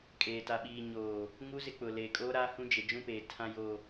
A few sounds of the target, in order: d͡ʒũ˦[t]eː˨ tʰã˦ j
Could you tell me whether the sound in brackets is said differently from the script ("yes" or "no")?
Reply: yes